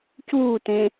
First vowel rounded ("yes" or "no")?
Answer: yes